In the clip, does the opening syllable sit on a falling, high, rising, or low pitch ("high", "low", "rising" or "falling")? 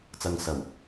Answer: low